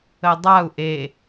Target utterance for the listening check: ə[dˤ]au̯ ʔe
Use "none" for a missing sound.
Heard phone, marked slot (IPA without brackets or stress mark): dˤ